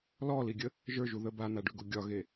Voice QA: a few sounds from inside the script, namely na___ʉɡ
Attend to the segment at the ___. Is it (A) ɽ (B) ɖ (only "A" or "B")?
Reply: B